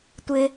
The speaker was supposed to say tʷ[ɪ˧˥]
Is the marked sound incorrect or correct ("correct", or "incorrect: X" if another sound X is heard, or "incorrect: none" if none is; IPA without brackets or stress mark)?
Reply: incorrect: ɪ˧